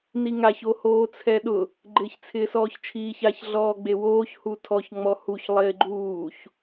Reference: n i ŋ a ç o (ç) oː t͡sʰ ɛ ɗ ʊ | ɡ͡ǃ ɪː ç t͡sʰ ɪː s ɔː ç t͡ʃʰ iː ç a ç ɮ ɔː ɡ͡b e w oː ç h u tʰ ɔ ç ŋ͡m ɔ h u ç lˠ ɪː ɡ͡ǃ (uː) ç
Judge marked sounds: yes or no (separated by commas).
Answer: no, yes